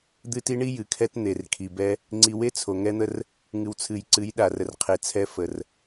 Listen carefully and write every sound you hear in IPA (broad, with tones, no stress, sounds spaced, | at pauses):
d̪ ɨ˦ t i˦ ɳ i˦ j ɨ˨ kʰ ɛ˦ t n̪ e˨ r kʰ i˨ b ɛ˦ | ŋ͡ǀ i˨ w e˦ t͡sʰ o˨ ŋ ɛ˦ n̪ ə˦ r | ŋ ɨ˨ w t͡sʰ ɨ˨ j ǀ ɨ˨˦ j ɗ a˨ r ə˨ r qʰ e˨ t͡sʰ ɛ˦ f ə˨ r